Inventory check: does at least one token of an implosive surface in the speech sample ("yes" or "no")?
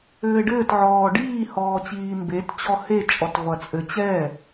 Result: no